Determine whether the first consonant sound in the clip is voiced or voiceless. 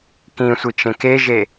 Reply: voiceless